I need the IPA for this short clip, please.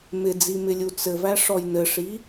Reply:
m ɪ d͡z i m ɪ lʲ u t͡s ɘ v æ ʂ ɔ j n ɘ ʂ i

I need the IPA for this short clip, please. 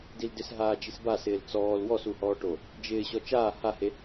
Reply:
d i l d ɪ s ɦ aː d͡ʒ i s b a s ɪː l t͡s ɔː l w ɔ s u h ɔː ʈ o | d͡ʒ ɪː ɕ ɔ t͡ʃ aː h a h e

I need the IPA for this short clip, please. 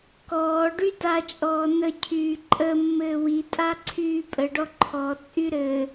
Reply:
k ɔː ɖ y d a t͡ʃʼ ɔː n ə cʰ yː ǃʼ ə mː ɘː w i tʼ a ǀʰ yː pʼ ə ɖ ɔ ǃʰ ɔ t͡sʼ y ɾ ɘ

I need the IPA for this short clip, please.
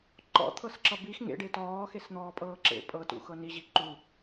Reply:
ǃ ɔ̰ t̪ʰ ɤ s ǁ ʌ b i x ŋ ḛ ɖ e t ɔː x e s n̪ ɔː pʼ ɤː ǁ ḛ pʼ ɤ t ṵ x ɤ n i ʑ i ǃ u

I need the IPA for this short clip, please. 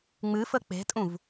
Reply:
ŋ͡m ɨ f ə k͡p e̤ tʼ ũ v

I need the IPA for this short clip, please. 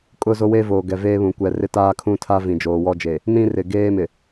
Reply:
kʼ ʊ˦˨ z o˦ w e˦ v oː˨ ɡ ɛ˨ v eː˦ β ũ˨ kʷ ɛ˨ r ɪ˦ t aː˦ kʰ ũ˦ tʰ a˦ v ĩ˨ d͡ʒ oː˨ w ɔ˦ d͡ʒ e˨ | n ĩ˦ r ɪ˨ ɡ eː˦ m ɪ˨

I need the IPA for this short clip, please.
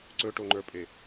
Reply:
ǀ ɵ ʈ o ŋ͡ǃ ə˞ pʼ e

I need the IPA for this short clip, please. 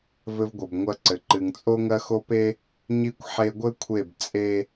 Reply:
v ɘ˦ v ɡʷ ɘ˨ b ŋʷ ɐ˦ ǀ ɘ˨ ǃ ɨ˨ ŋ t͡sʼ o˦ ŋ ɐ˦ x o˦ p e˦ | ɲ i˦ kʷ ħ e˦ ɡʷ ɘ˦ kʷʰ e˦˨ b t͡sʼ e˦

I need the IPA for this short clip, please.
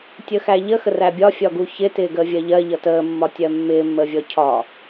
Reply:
tʲ ə x æ ʎ ə x ə r æ bʲ ɒ fʲ ɒ ɡ u ç ɪ t ɪː ɡ əː vʲ ɜ ʎ ɜ ʎ ʌ t əː mː ɒ tʲ ɜ mː ɪː mː əː vʲ ɔ cʰ ɒ

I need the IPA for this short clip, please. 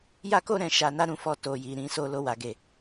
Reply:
j a˦ k o˦ ɾ ɛ̃˧ ʃ a˧ n a˦ ɾ ũ˦˨ f ɔ˧ t o˨ j i˨ ɾ ĩ˨˦ s o˧ l o˧ w a˨ ɡ e˨

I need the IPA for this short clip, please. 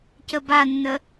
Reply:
c ə b a nː ə

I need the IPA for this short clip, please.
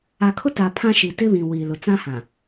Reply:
a˨ kʰ ʊ˦ t a˨ pʰ ã˦ ʃ i˨ t ɪ˦ β ĩ˨ w iː˨ l ʊ˨ t͡s ã˦ h ã˨

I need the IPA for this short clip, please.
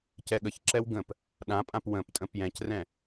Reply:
c ɛ ɠ ə ç ǁ ɛ w ɡ ə̃ p | ɗ ã pʼ ã p w ə̃ p tʼ ə̃ p j ɛ̃ c r ɛ̃

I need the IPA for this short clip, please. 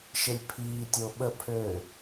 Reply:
ʃ e lʲ pʰ iː tʲ o ɓ ə pʰ ø

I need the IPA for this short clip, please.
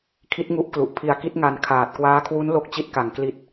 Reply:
kʰ i˦˥ t̚ ŋ u˦˥ ʔ k l u˨˩ ʔ pʰ i˧ a̯ k i˦˥ t̚ ŋ a˧ n kʰ aː˨˩ t̚ k w aː˦˥ kʰ w u˦˥ n l o˦˥ k̚ t͡ɕ i˦˥ t̚ k a˨˩ ŋ k l i˨˩ t̚

